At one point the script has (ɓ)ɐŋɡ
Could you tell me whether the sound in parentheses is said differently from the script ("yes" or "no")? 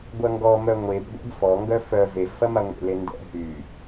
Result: yes